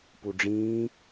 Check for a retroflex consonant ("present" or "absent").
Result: present